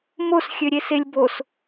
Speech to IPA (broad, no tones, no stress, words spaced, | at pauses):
mos xʲøɾʲeselʲbos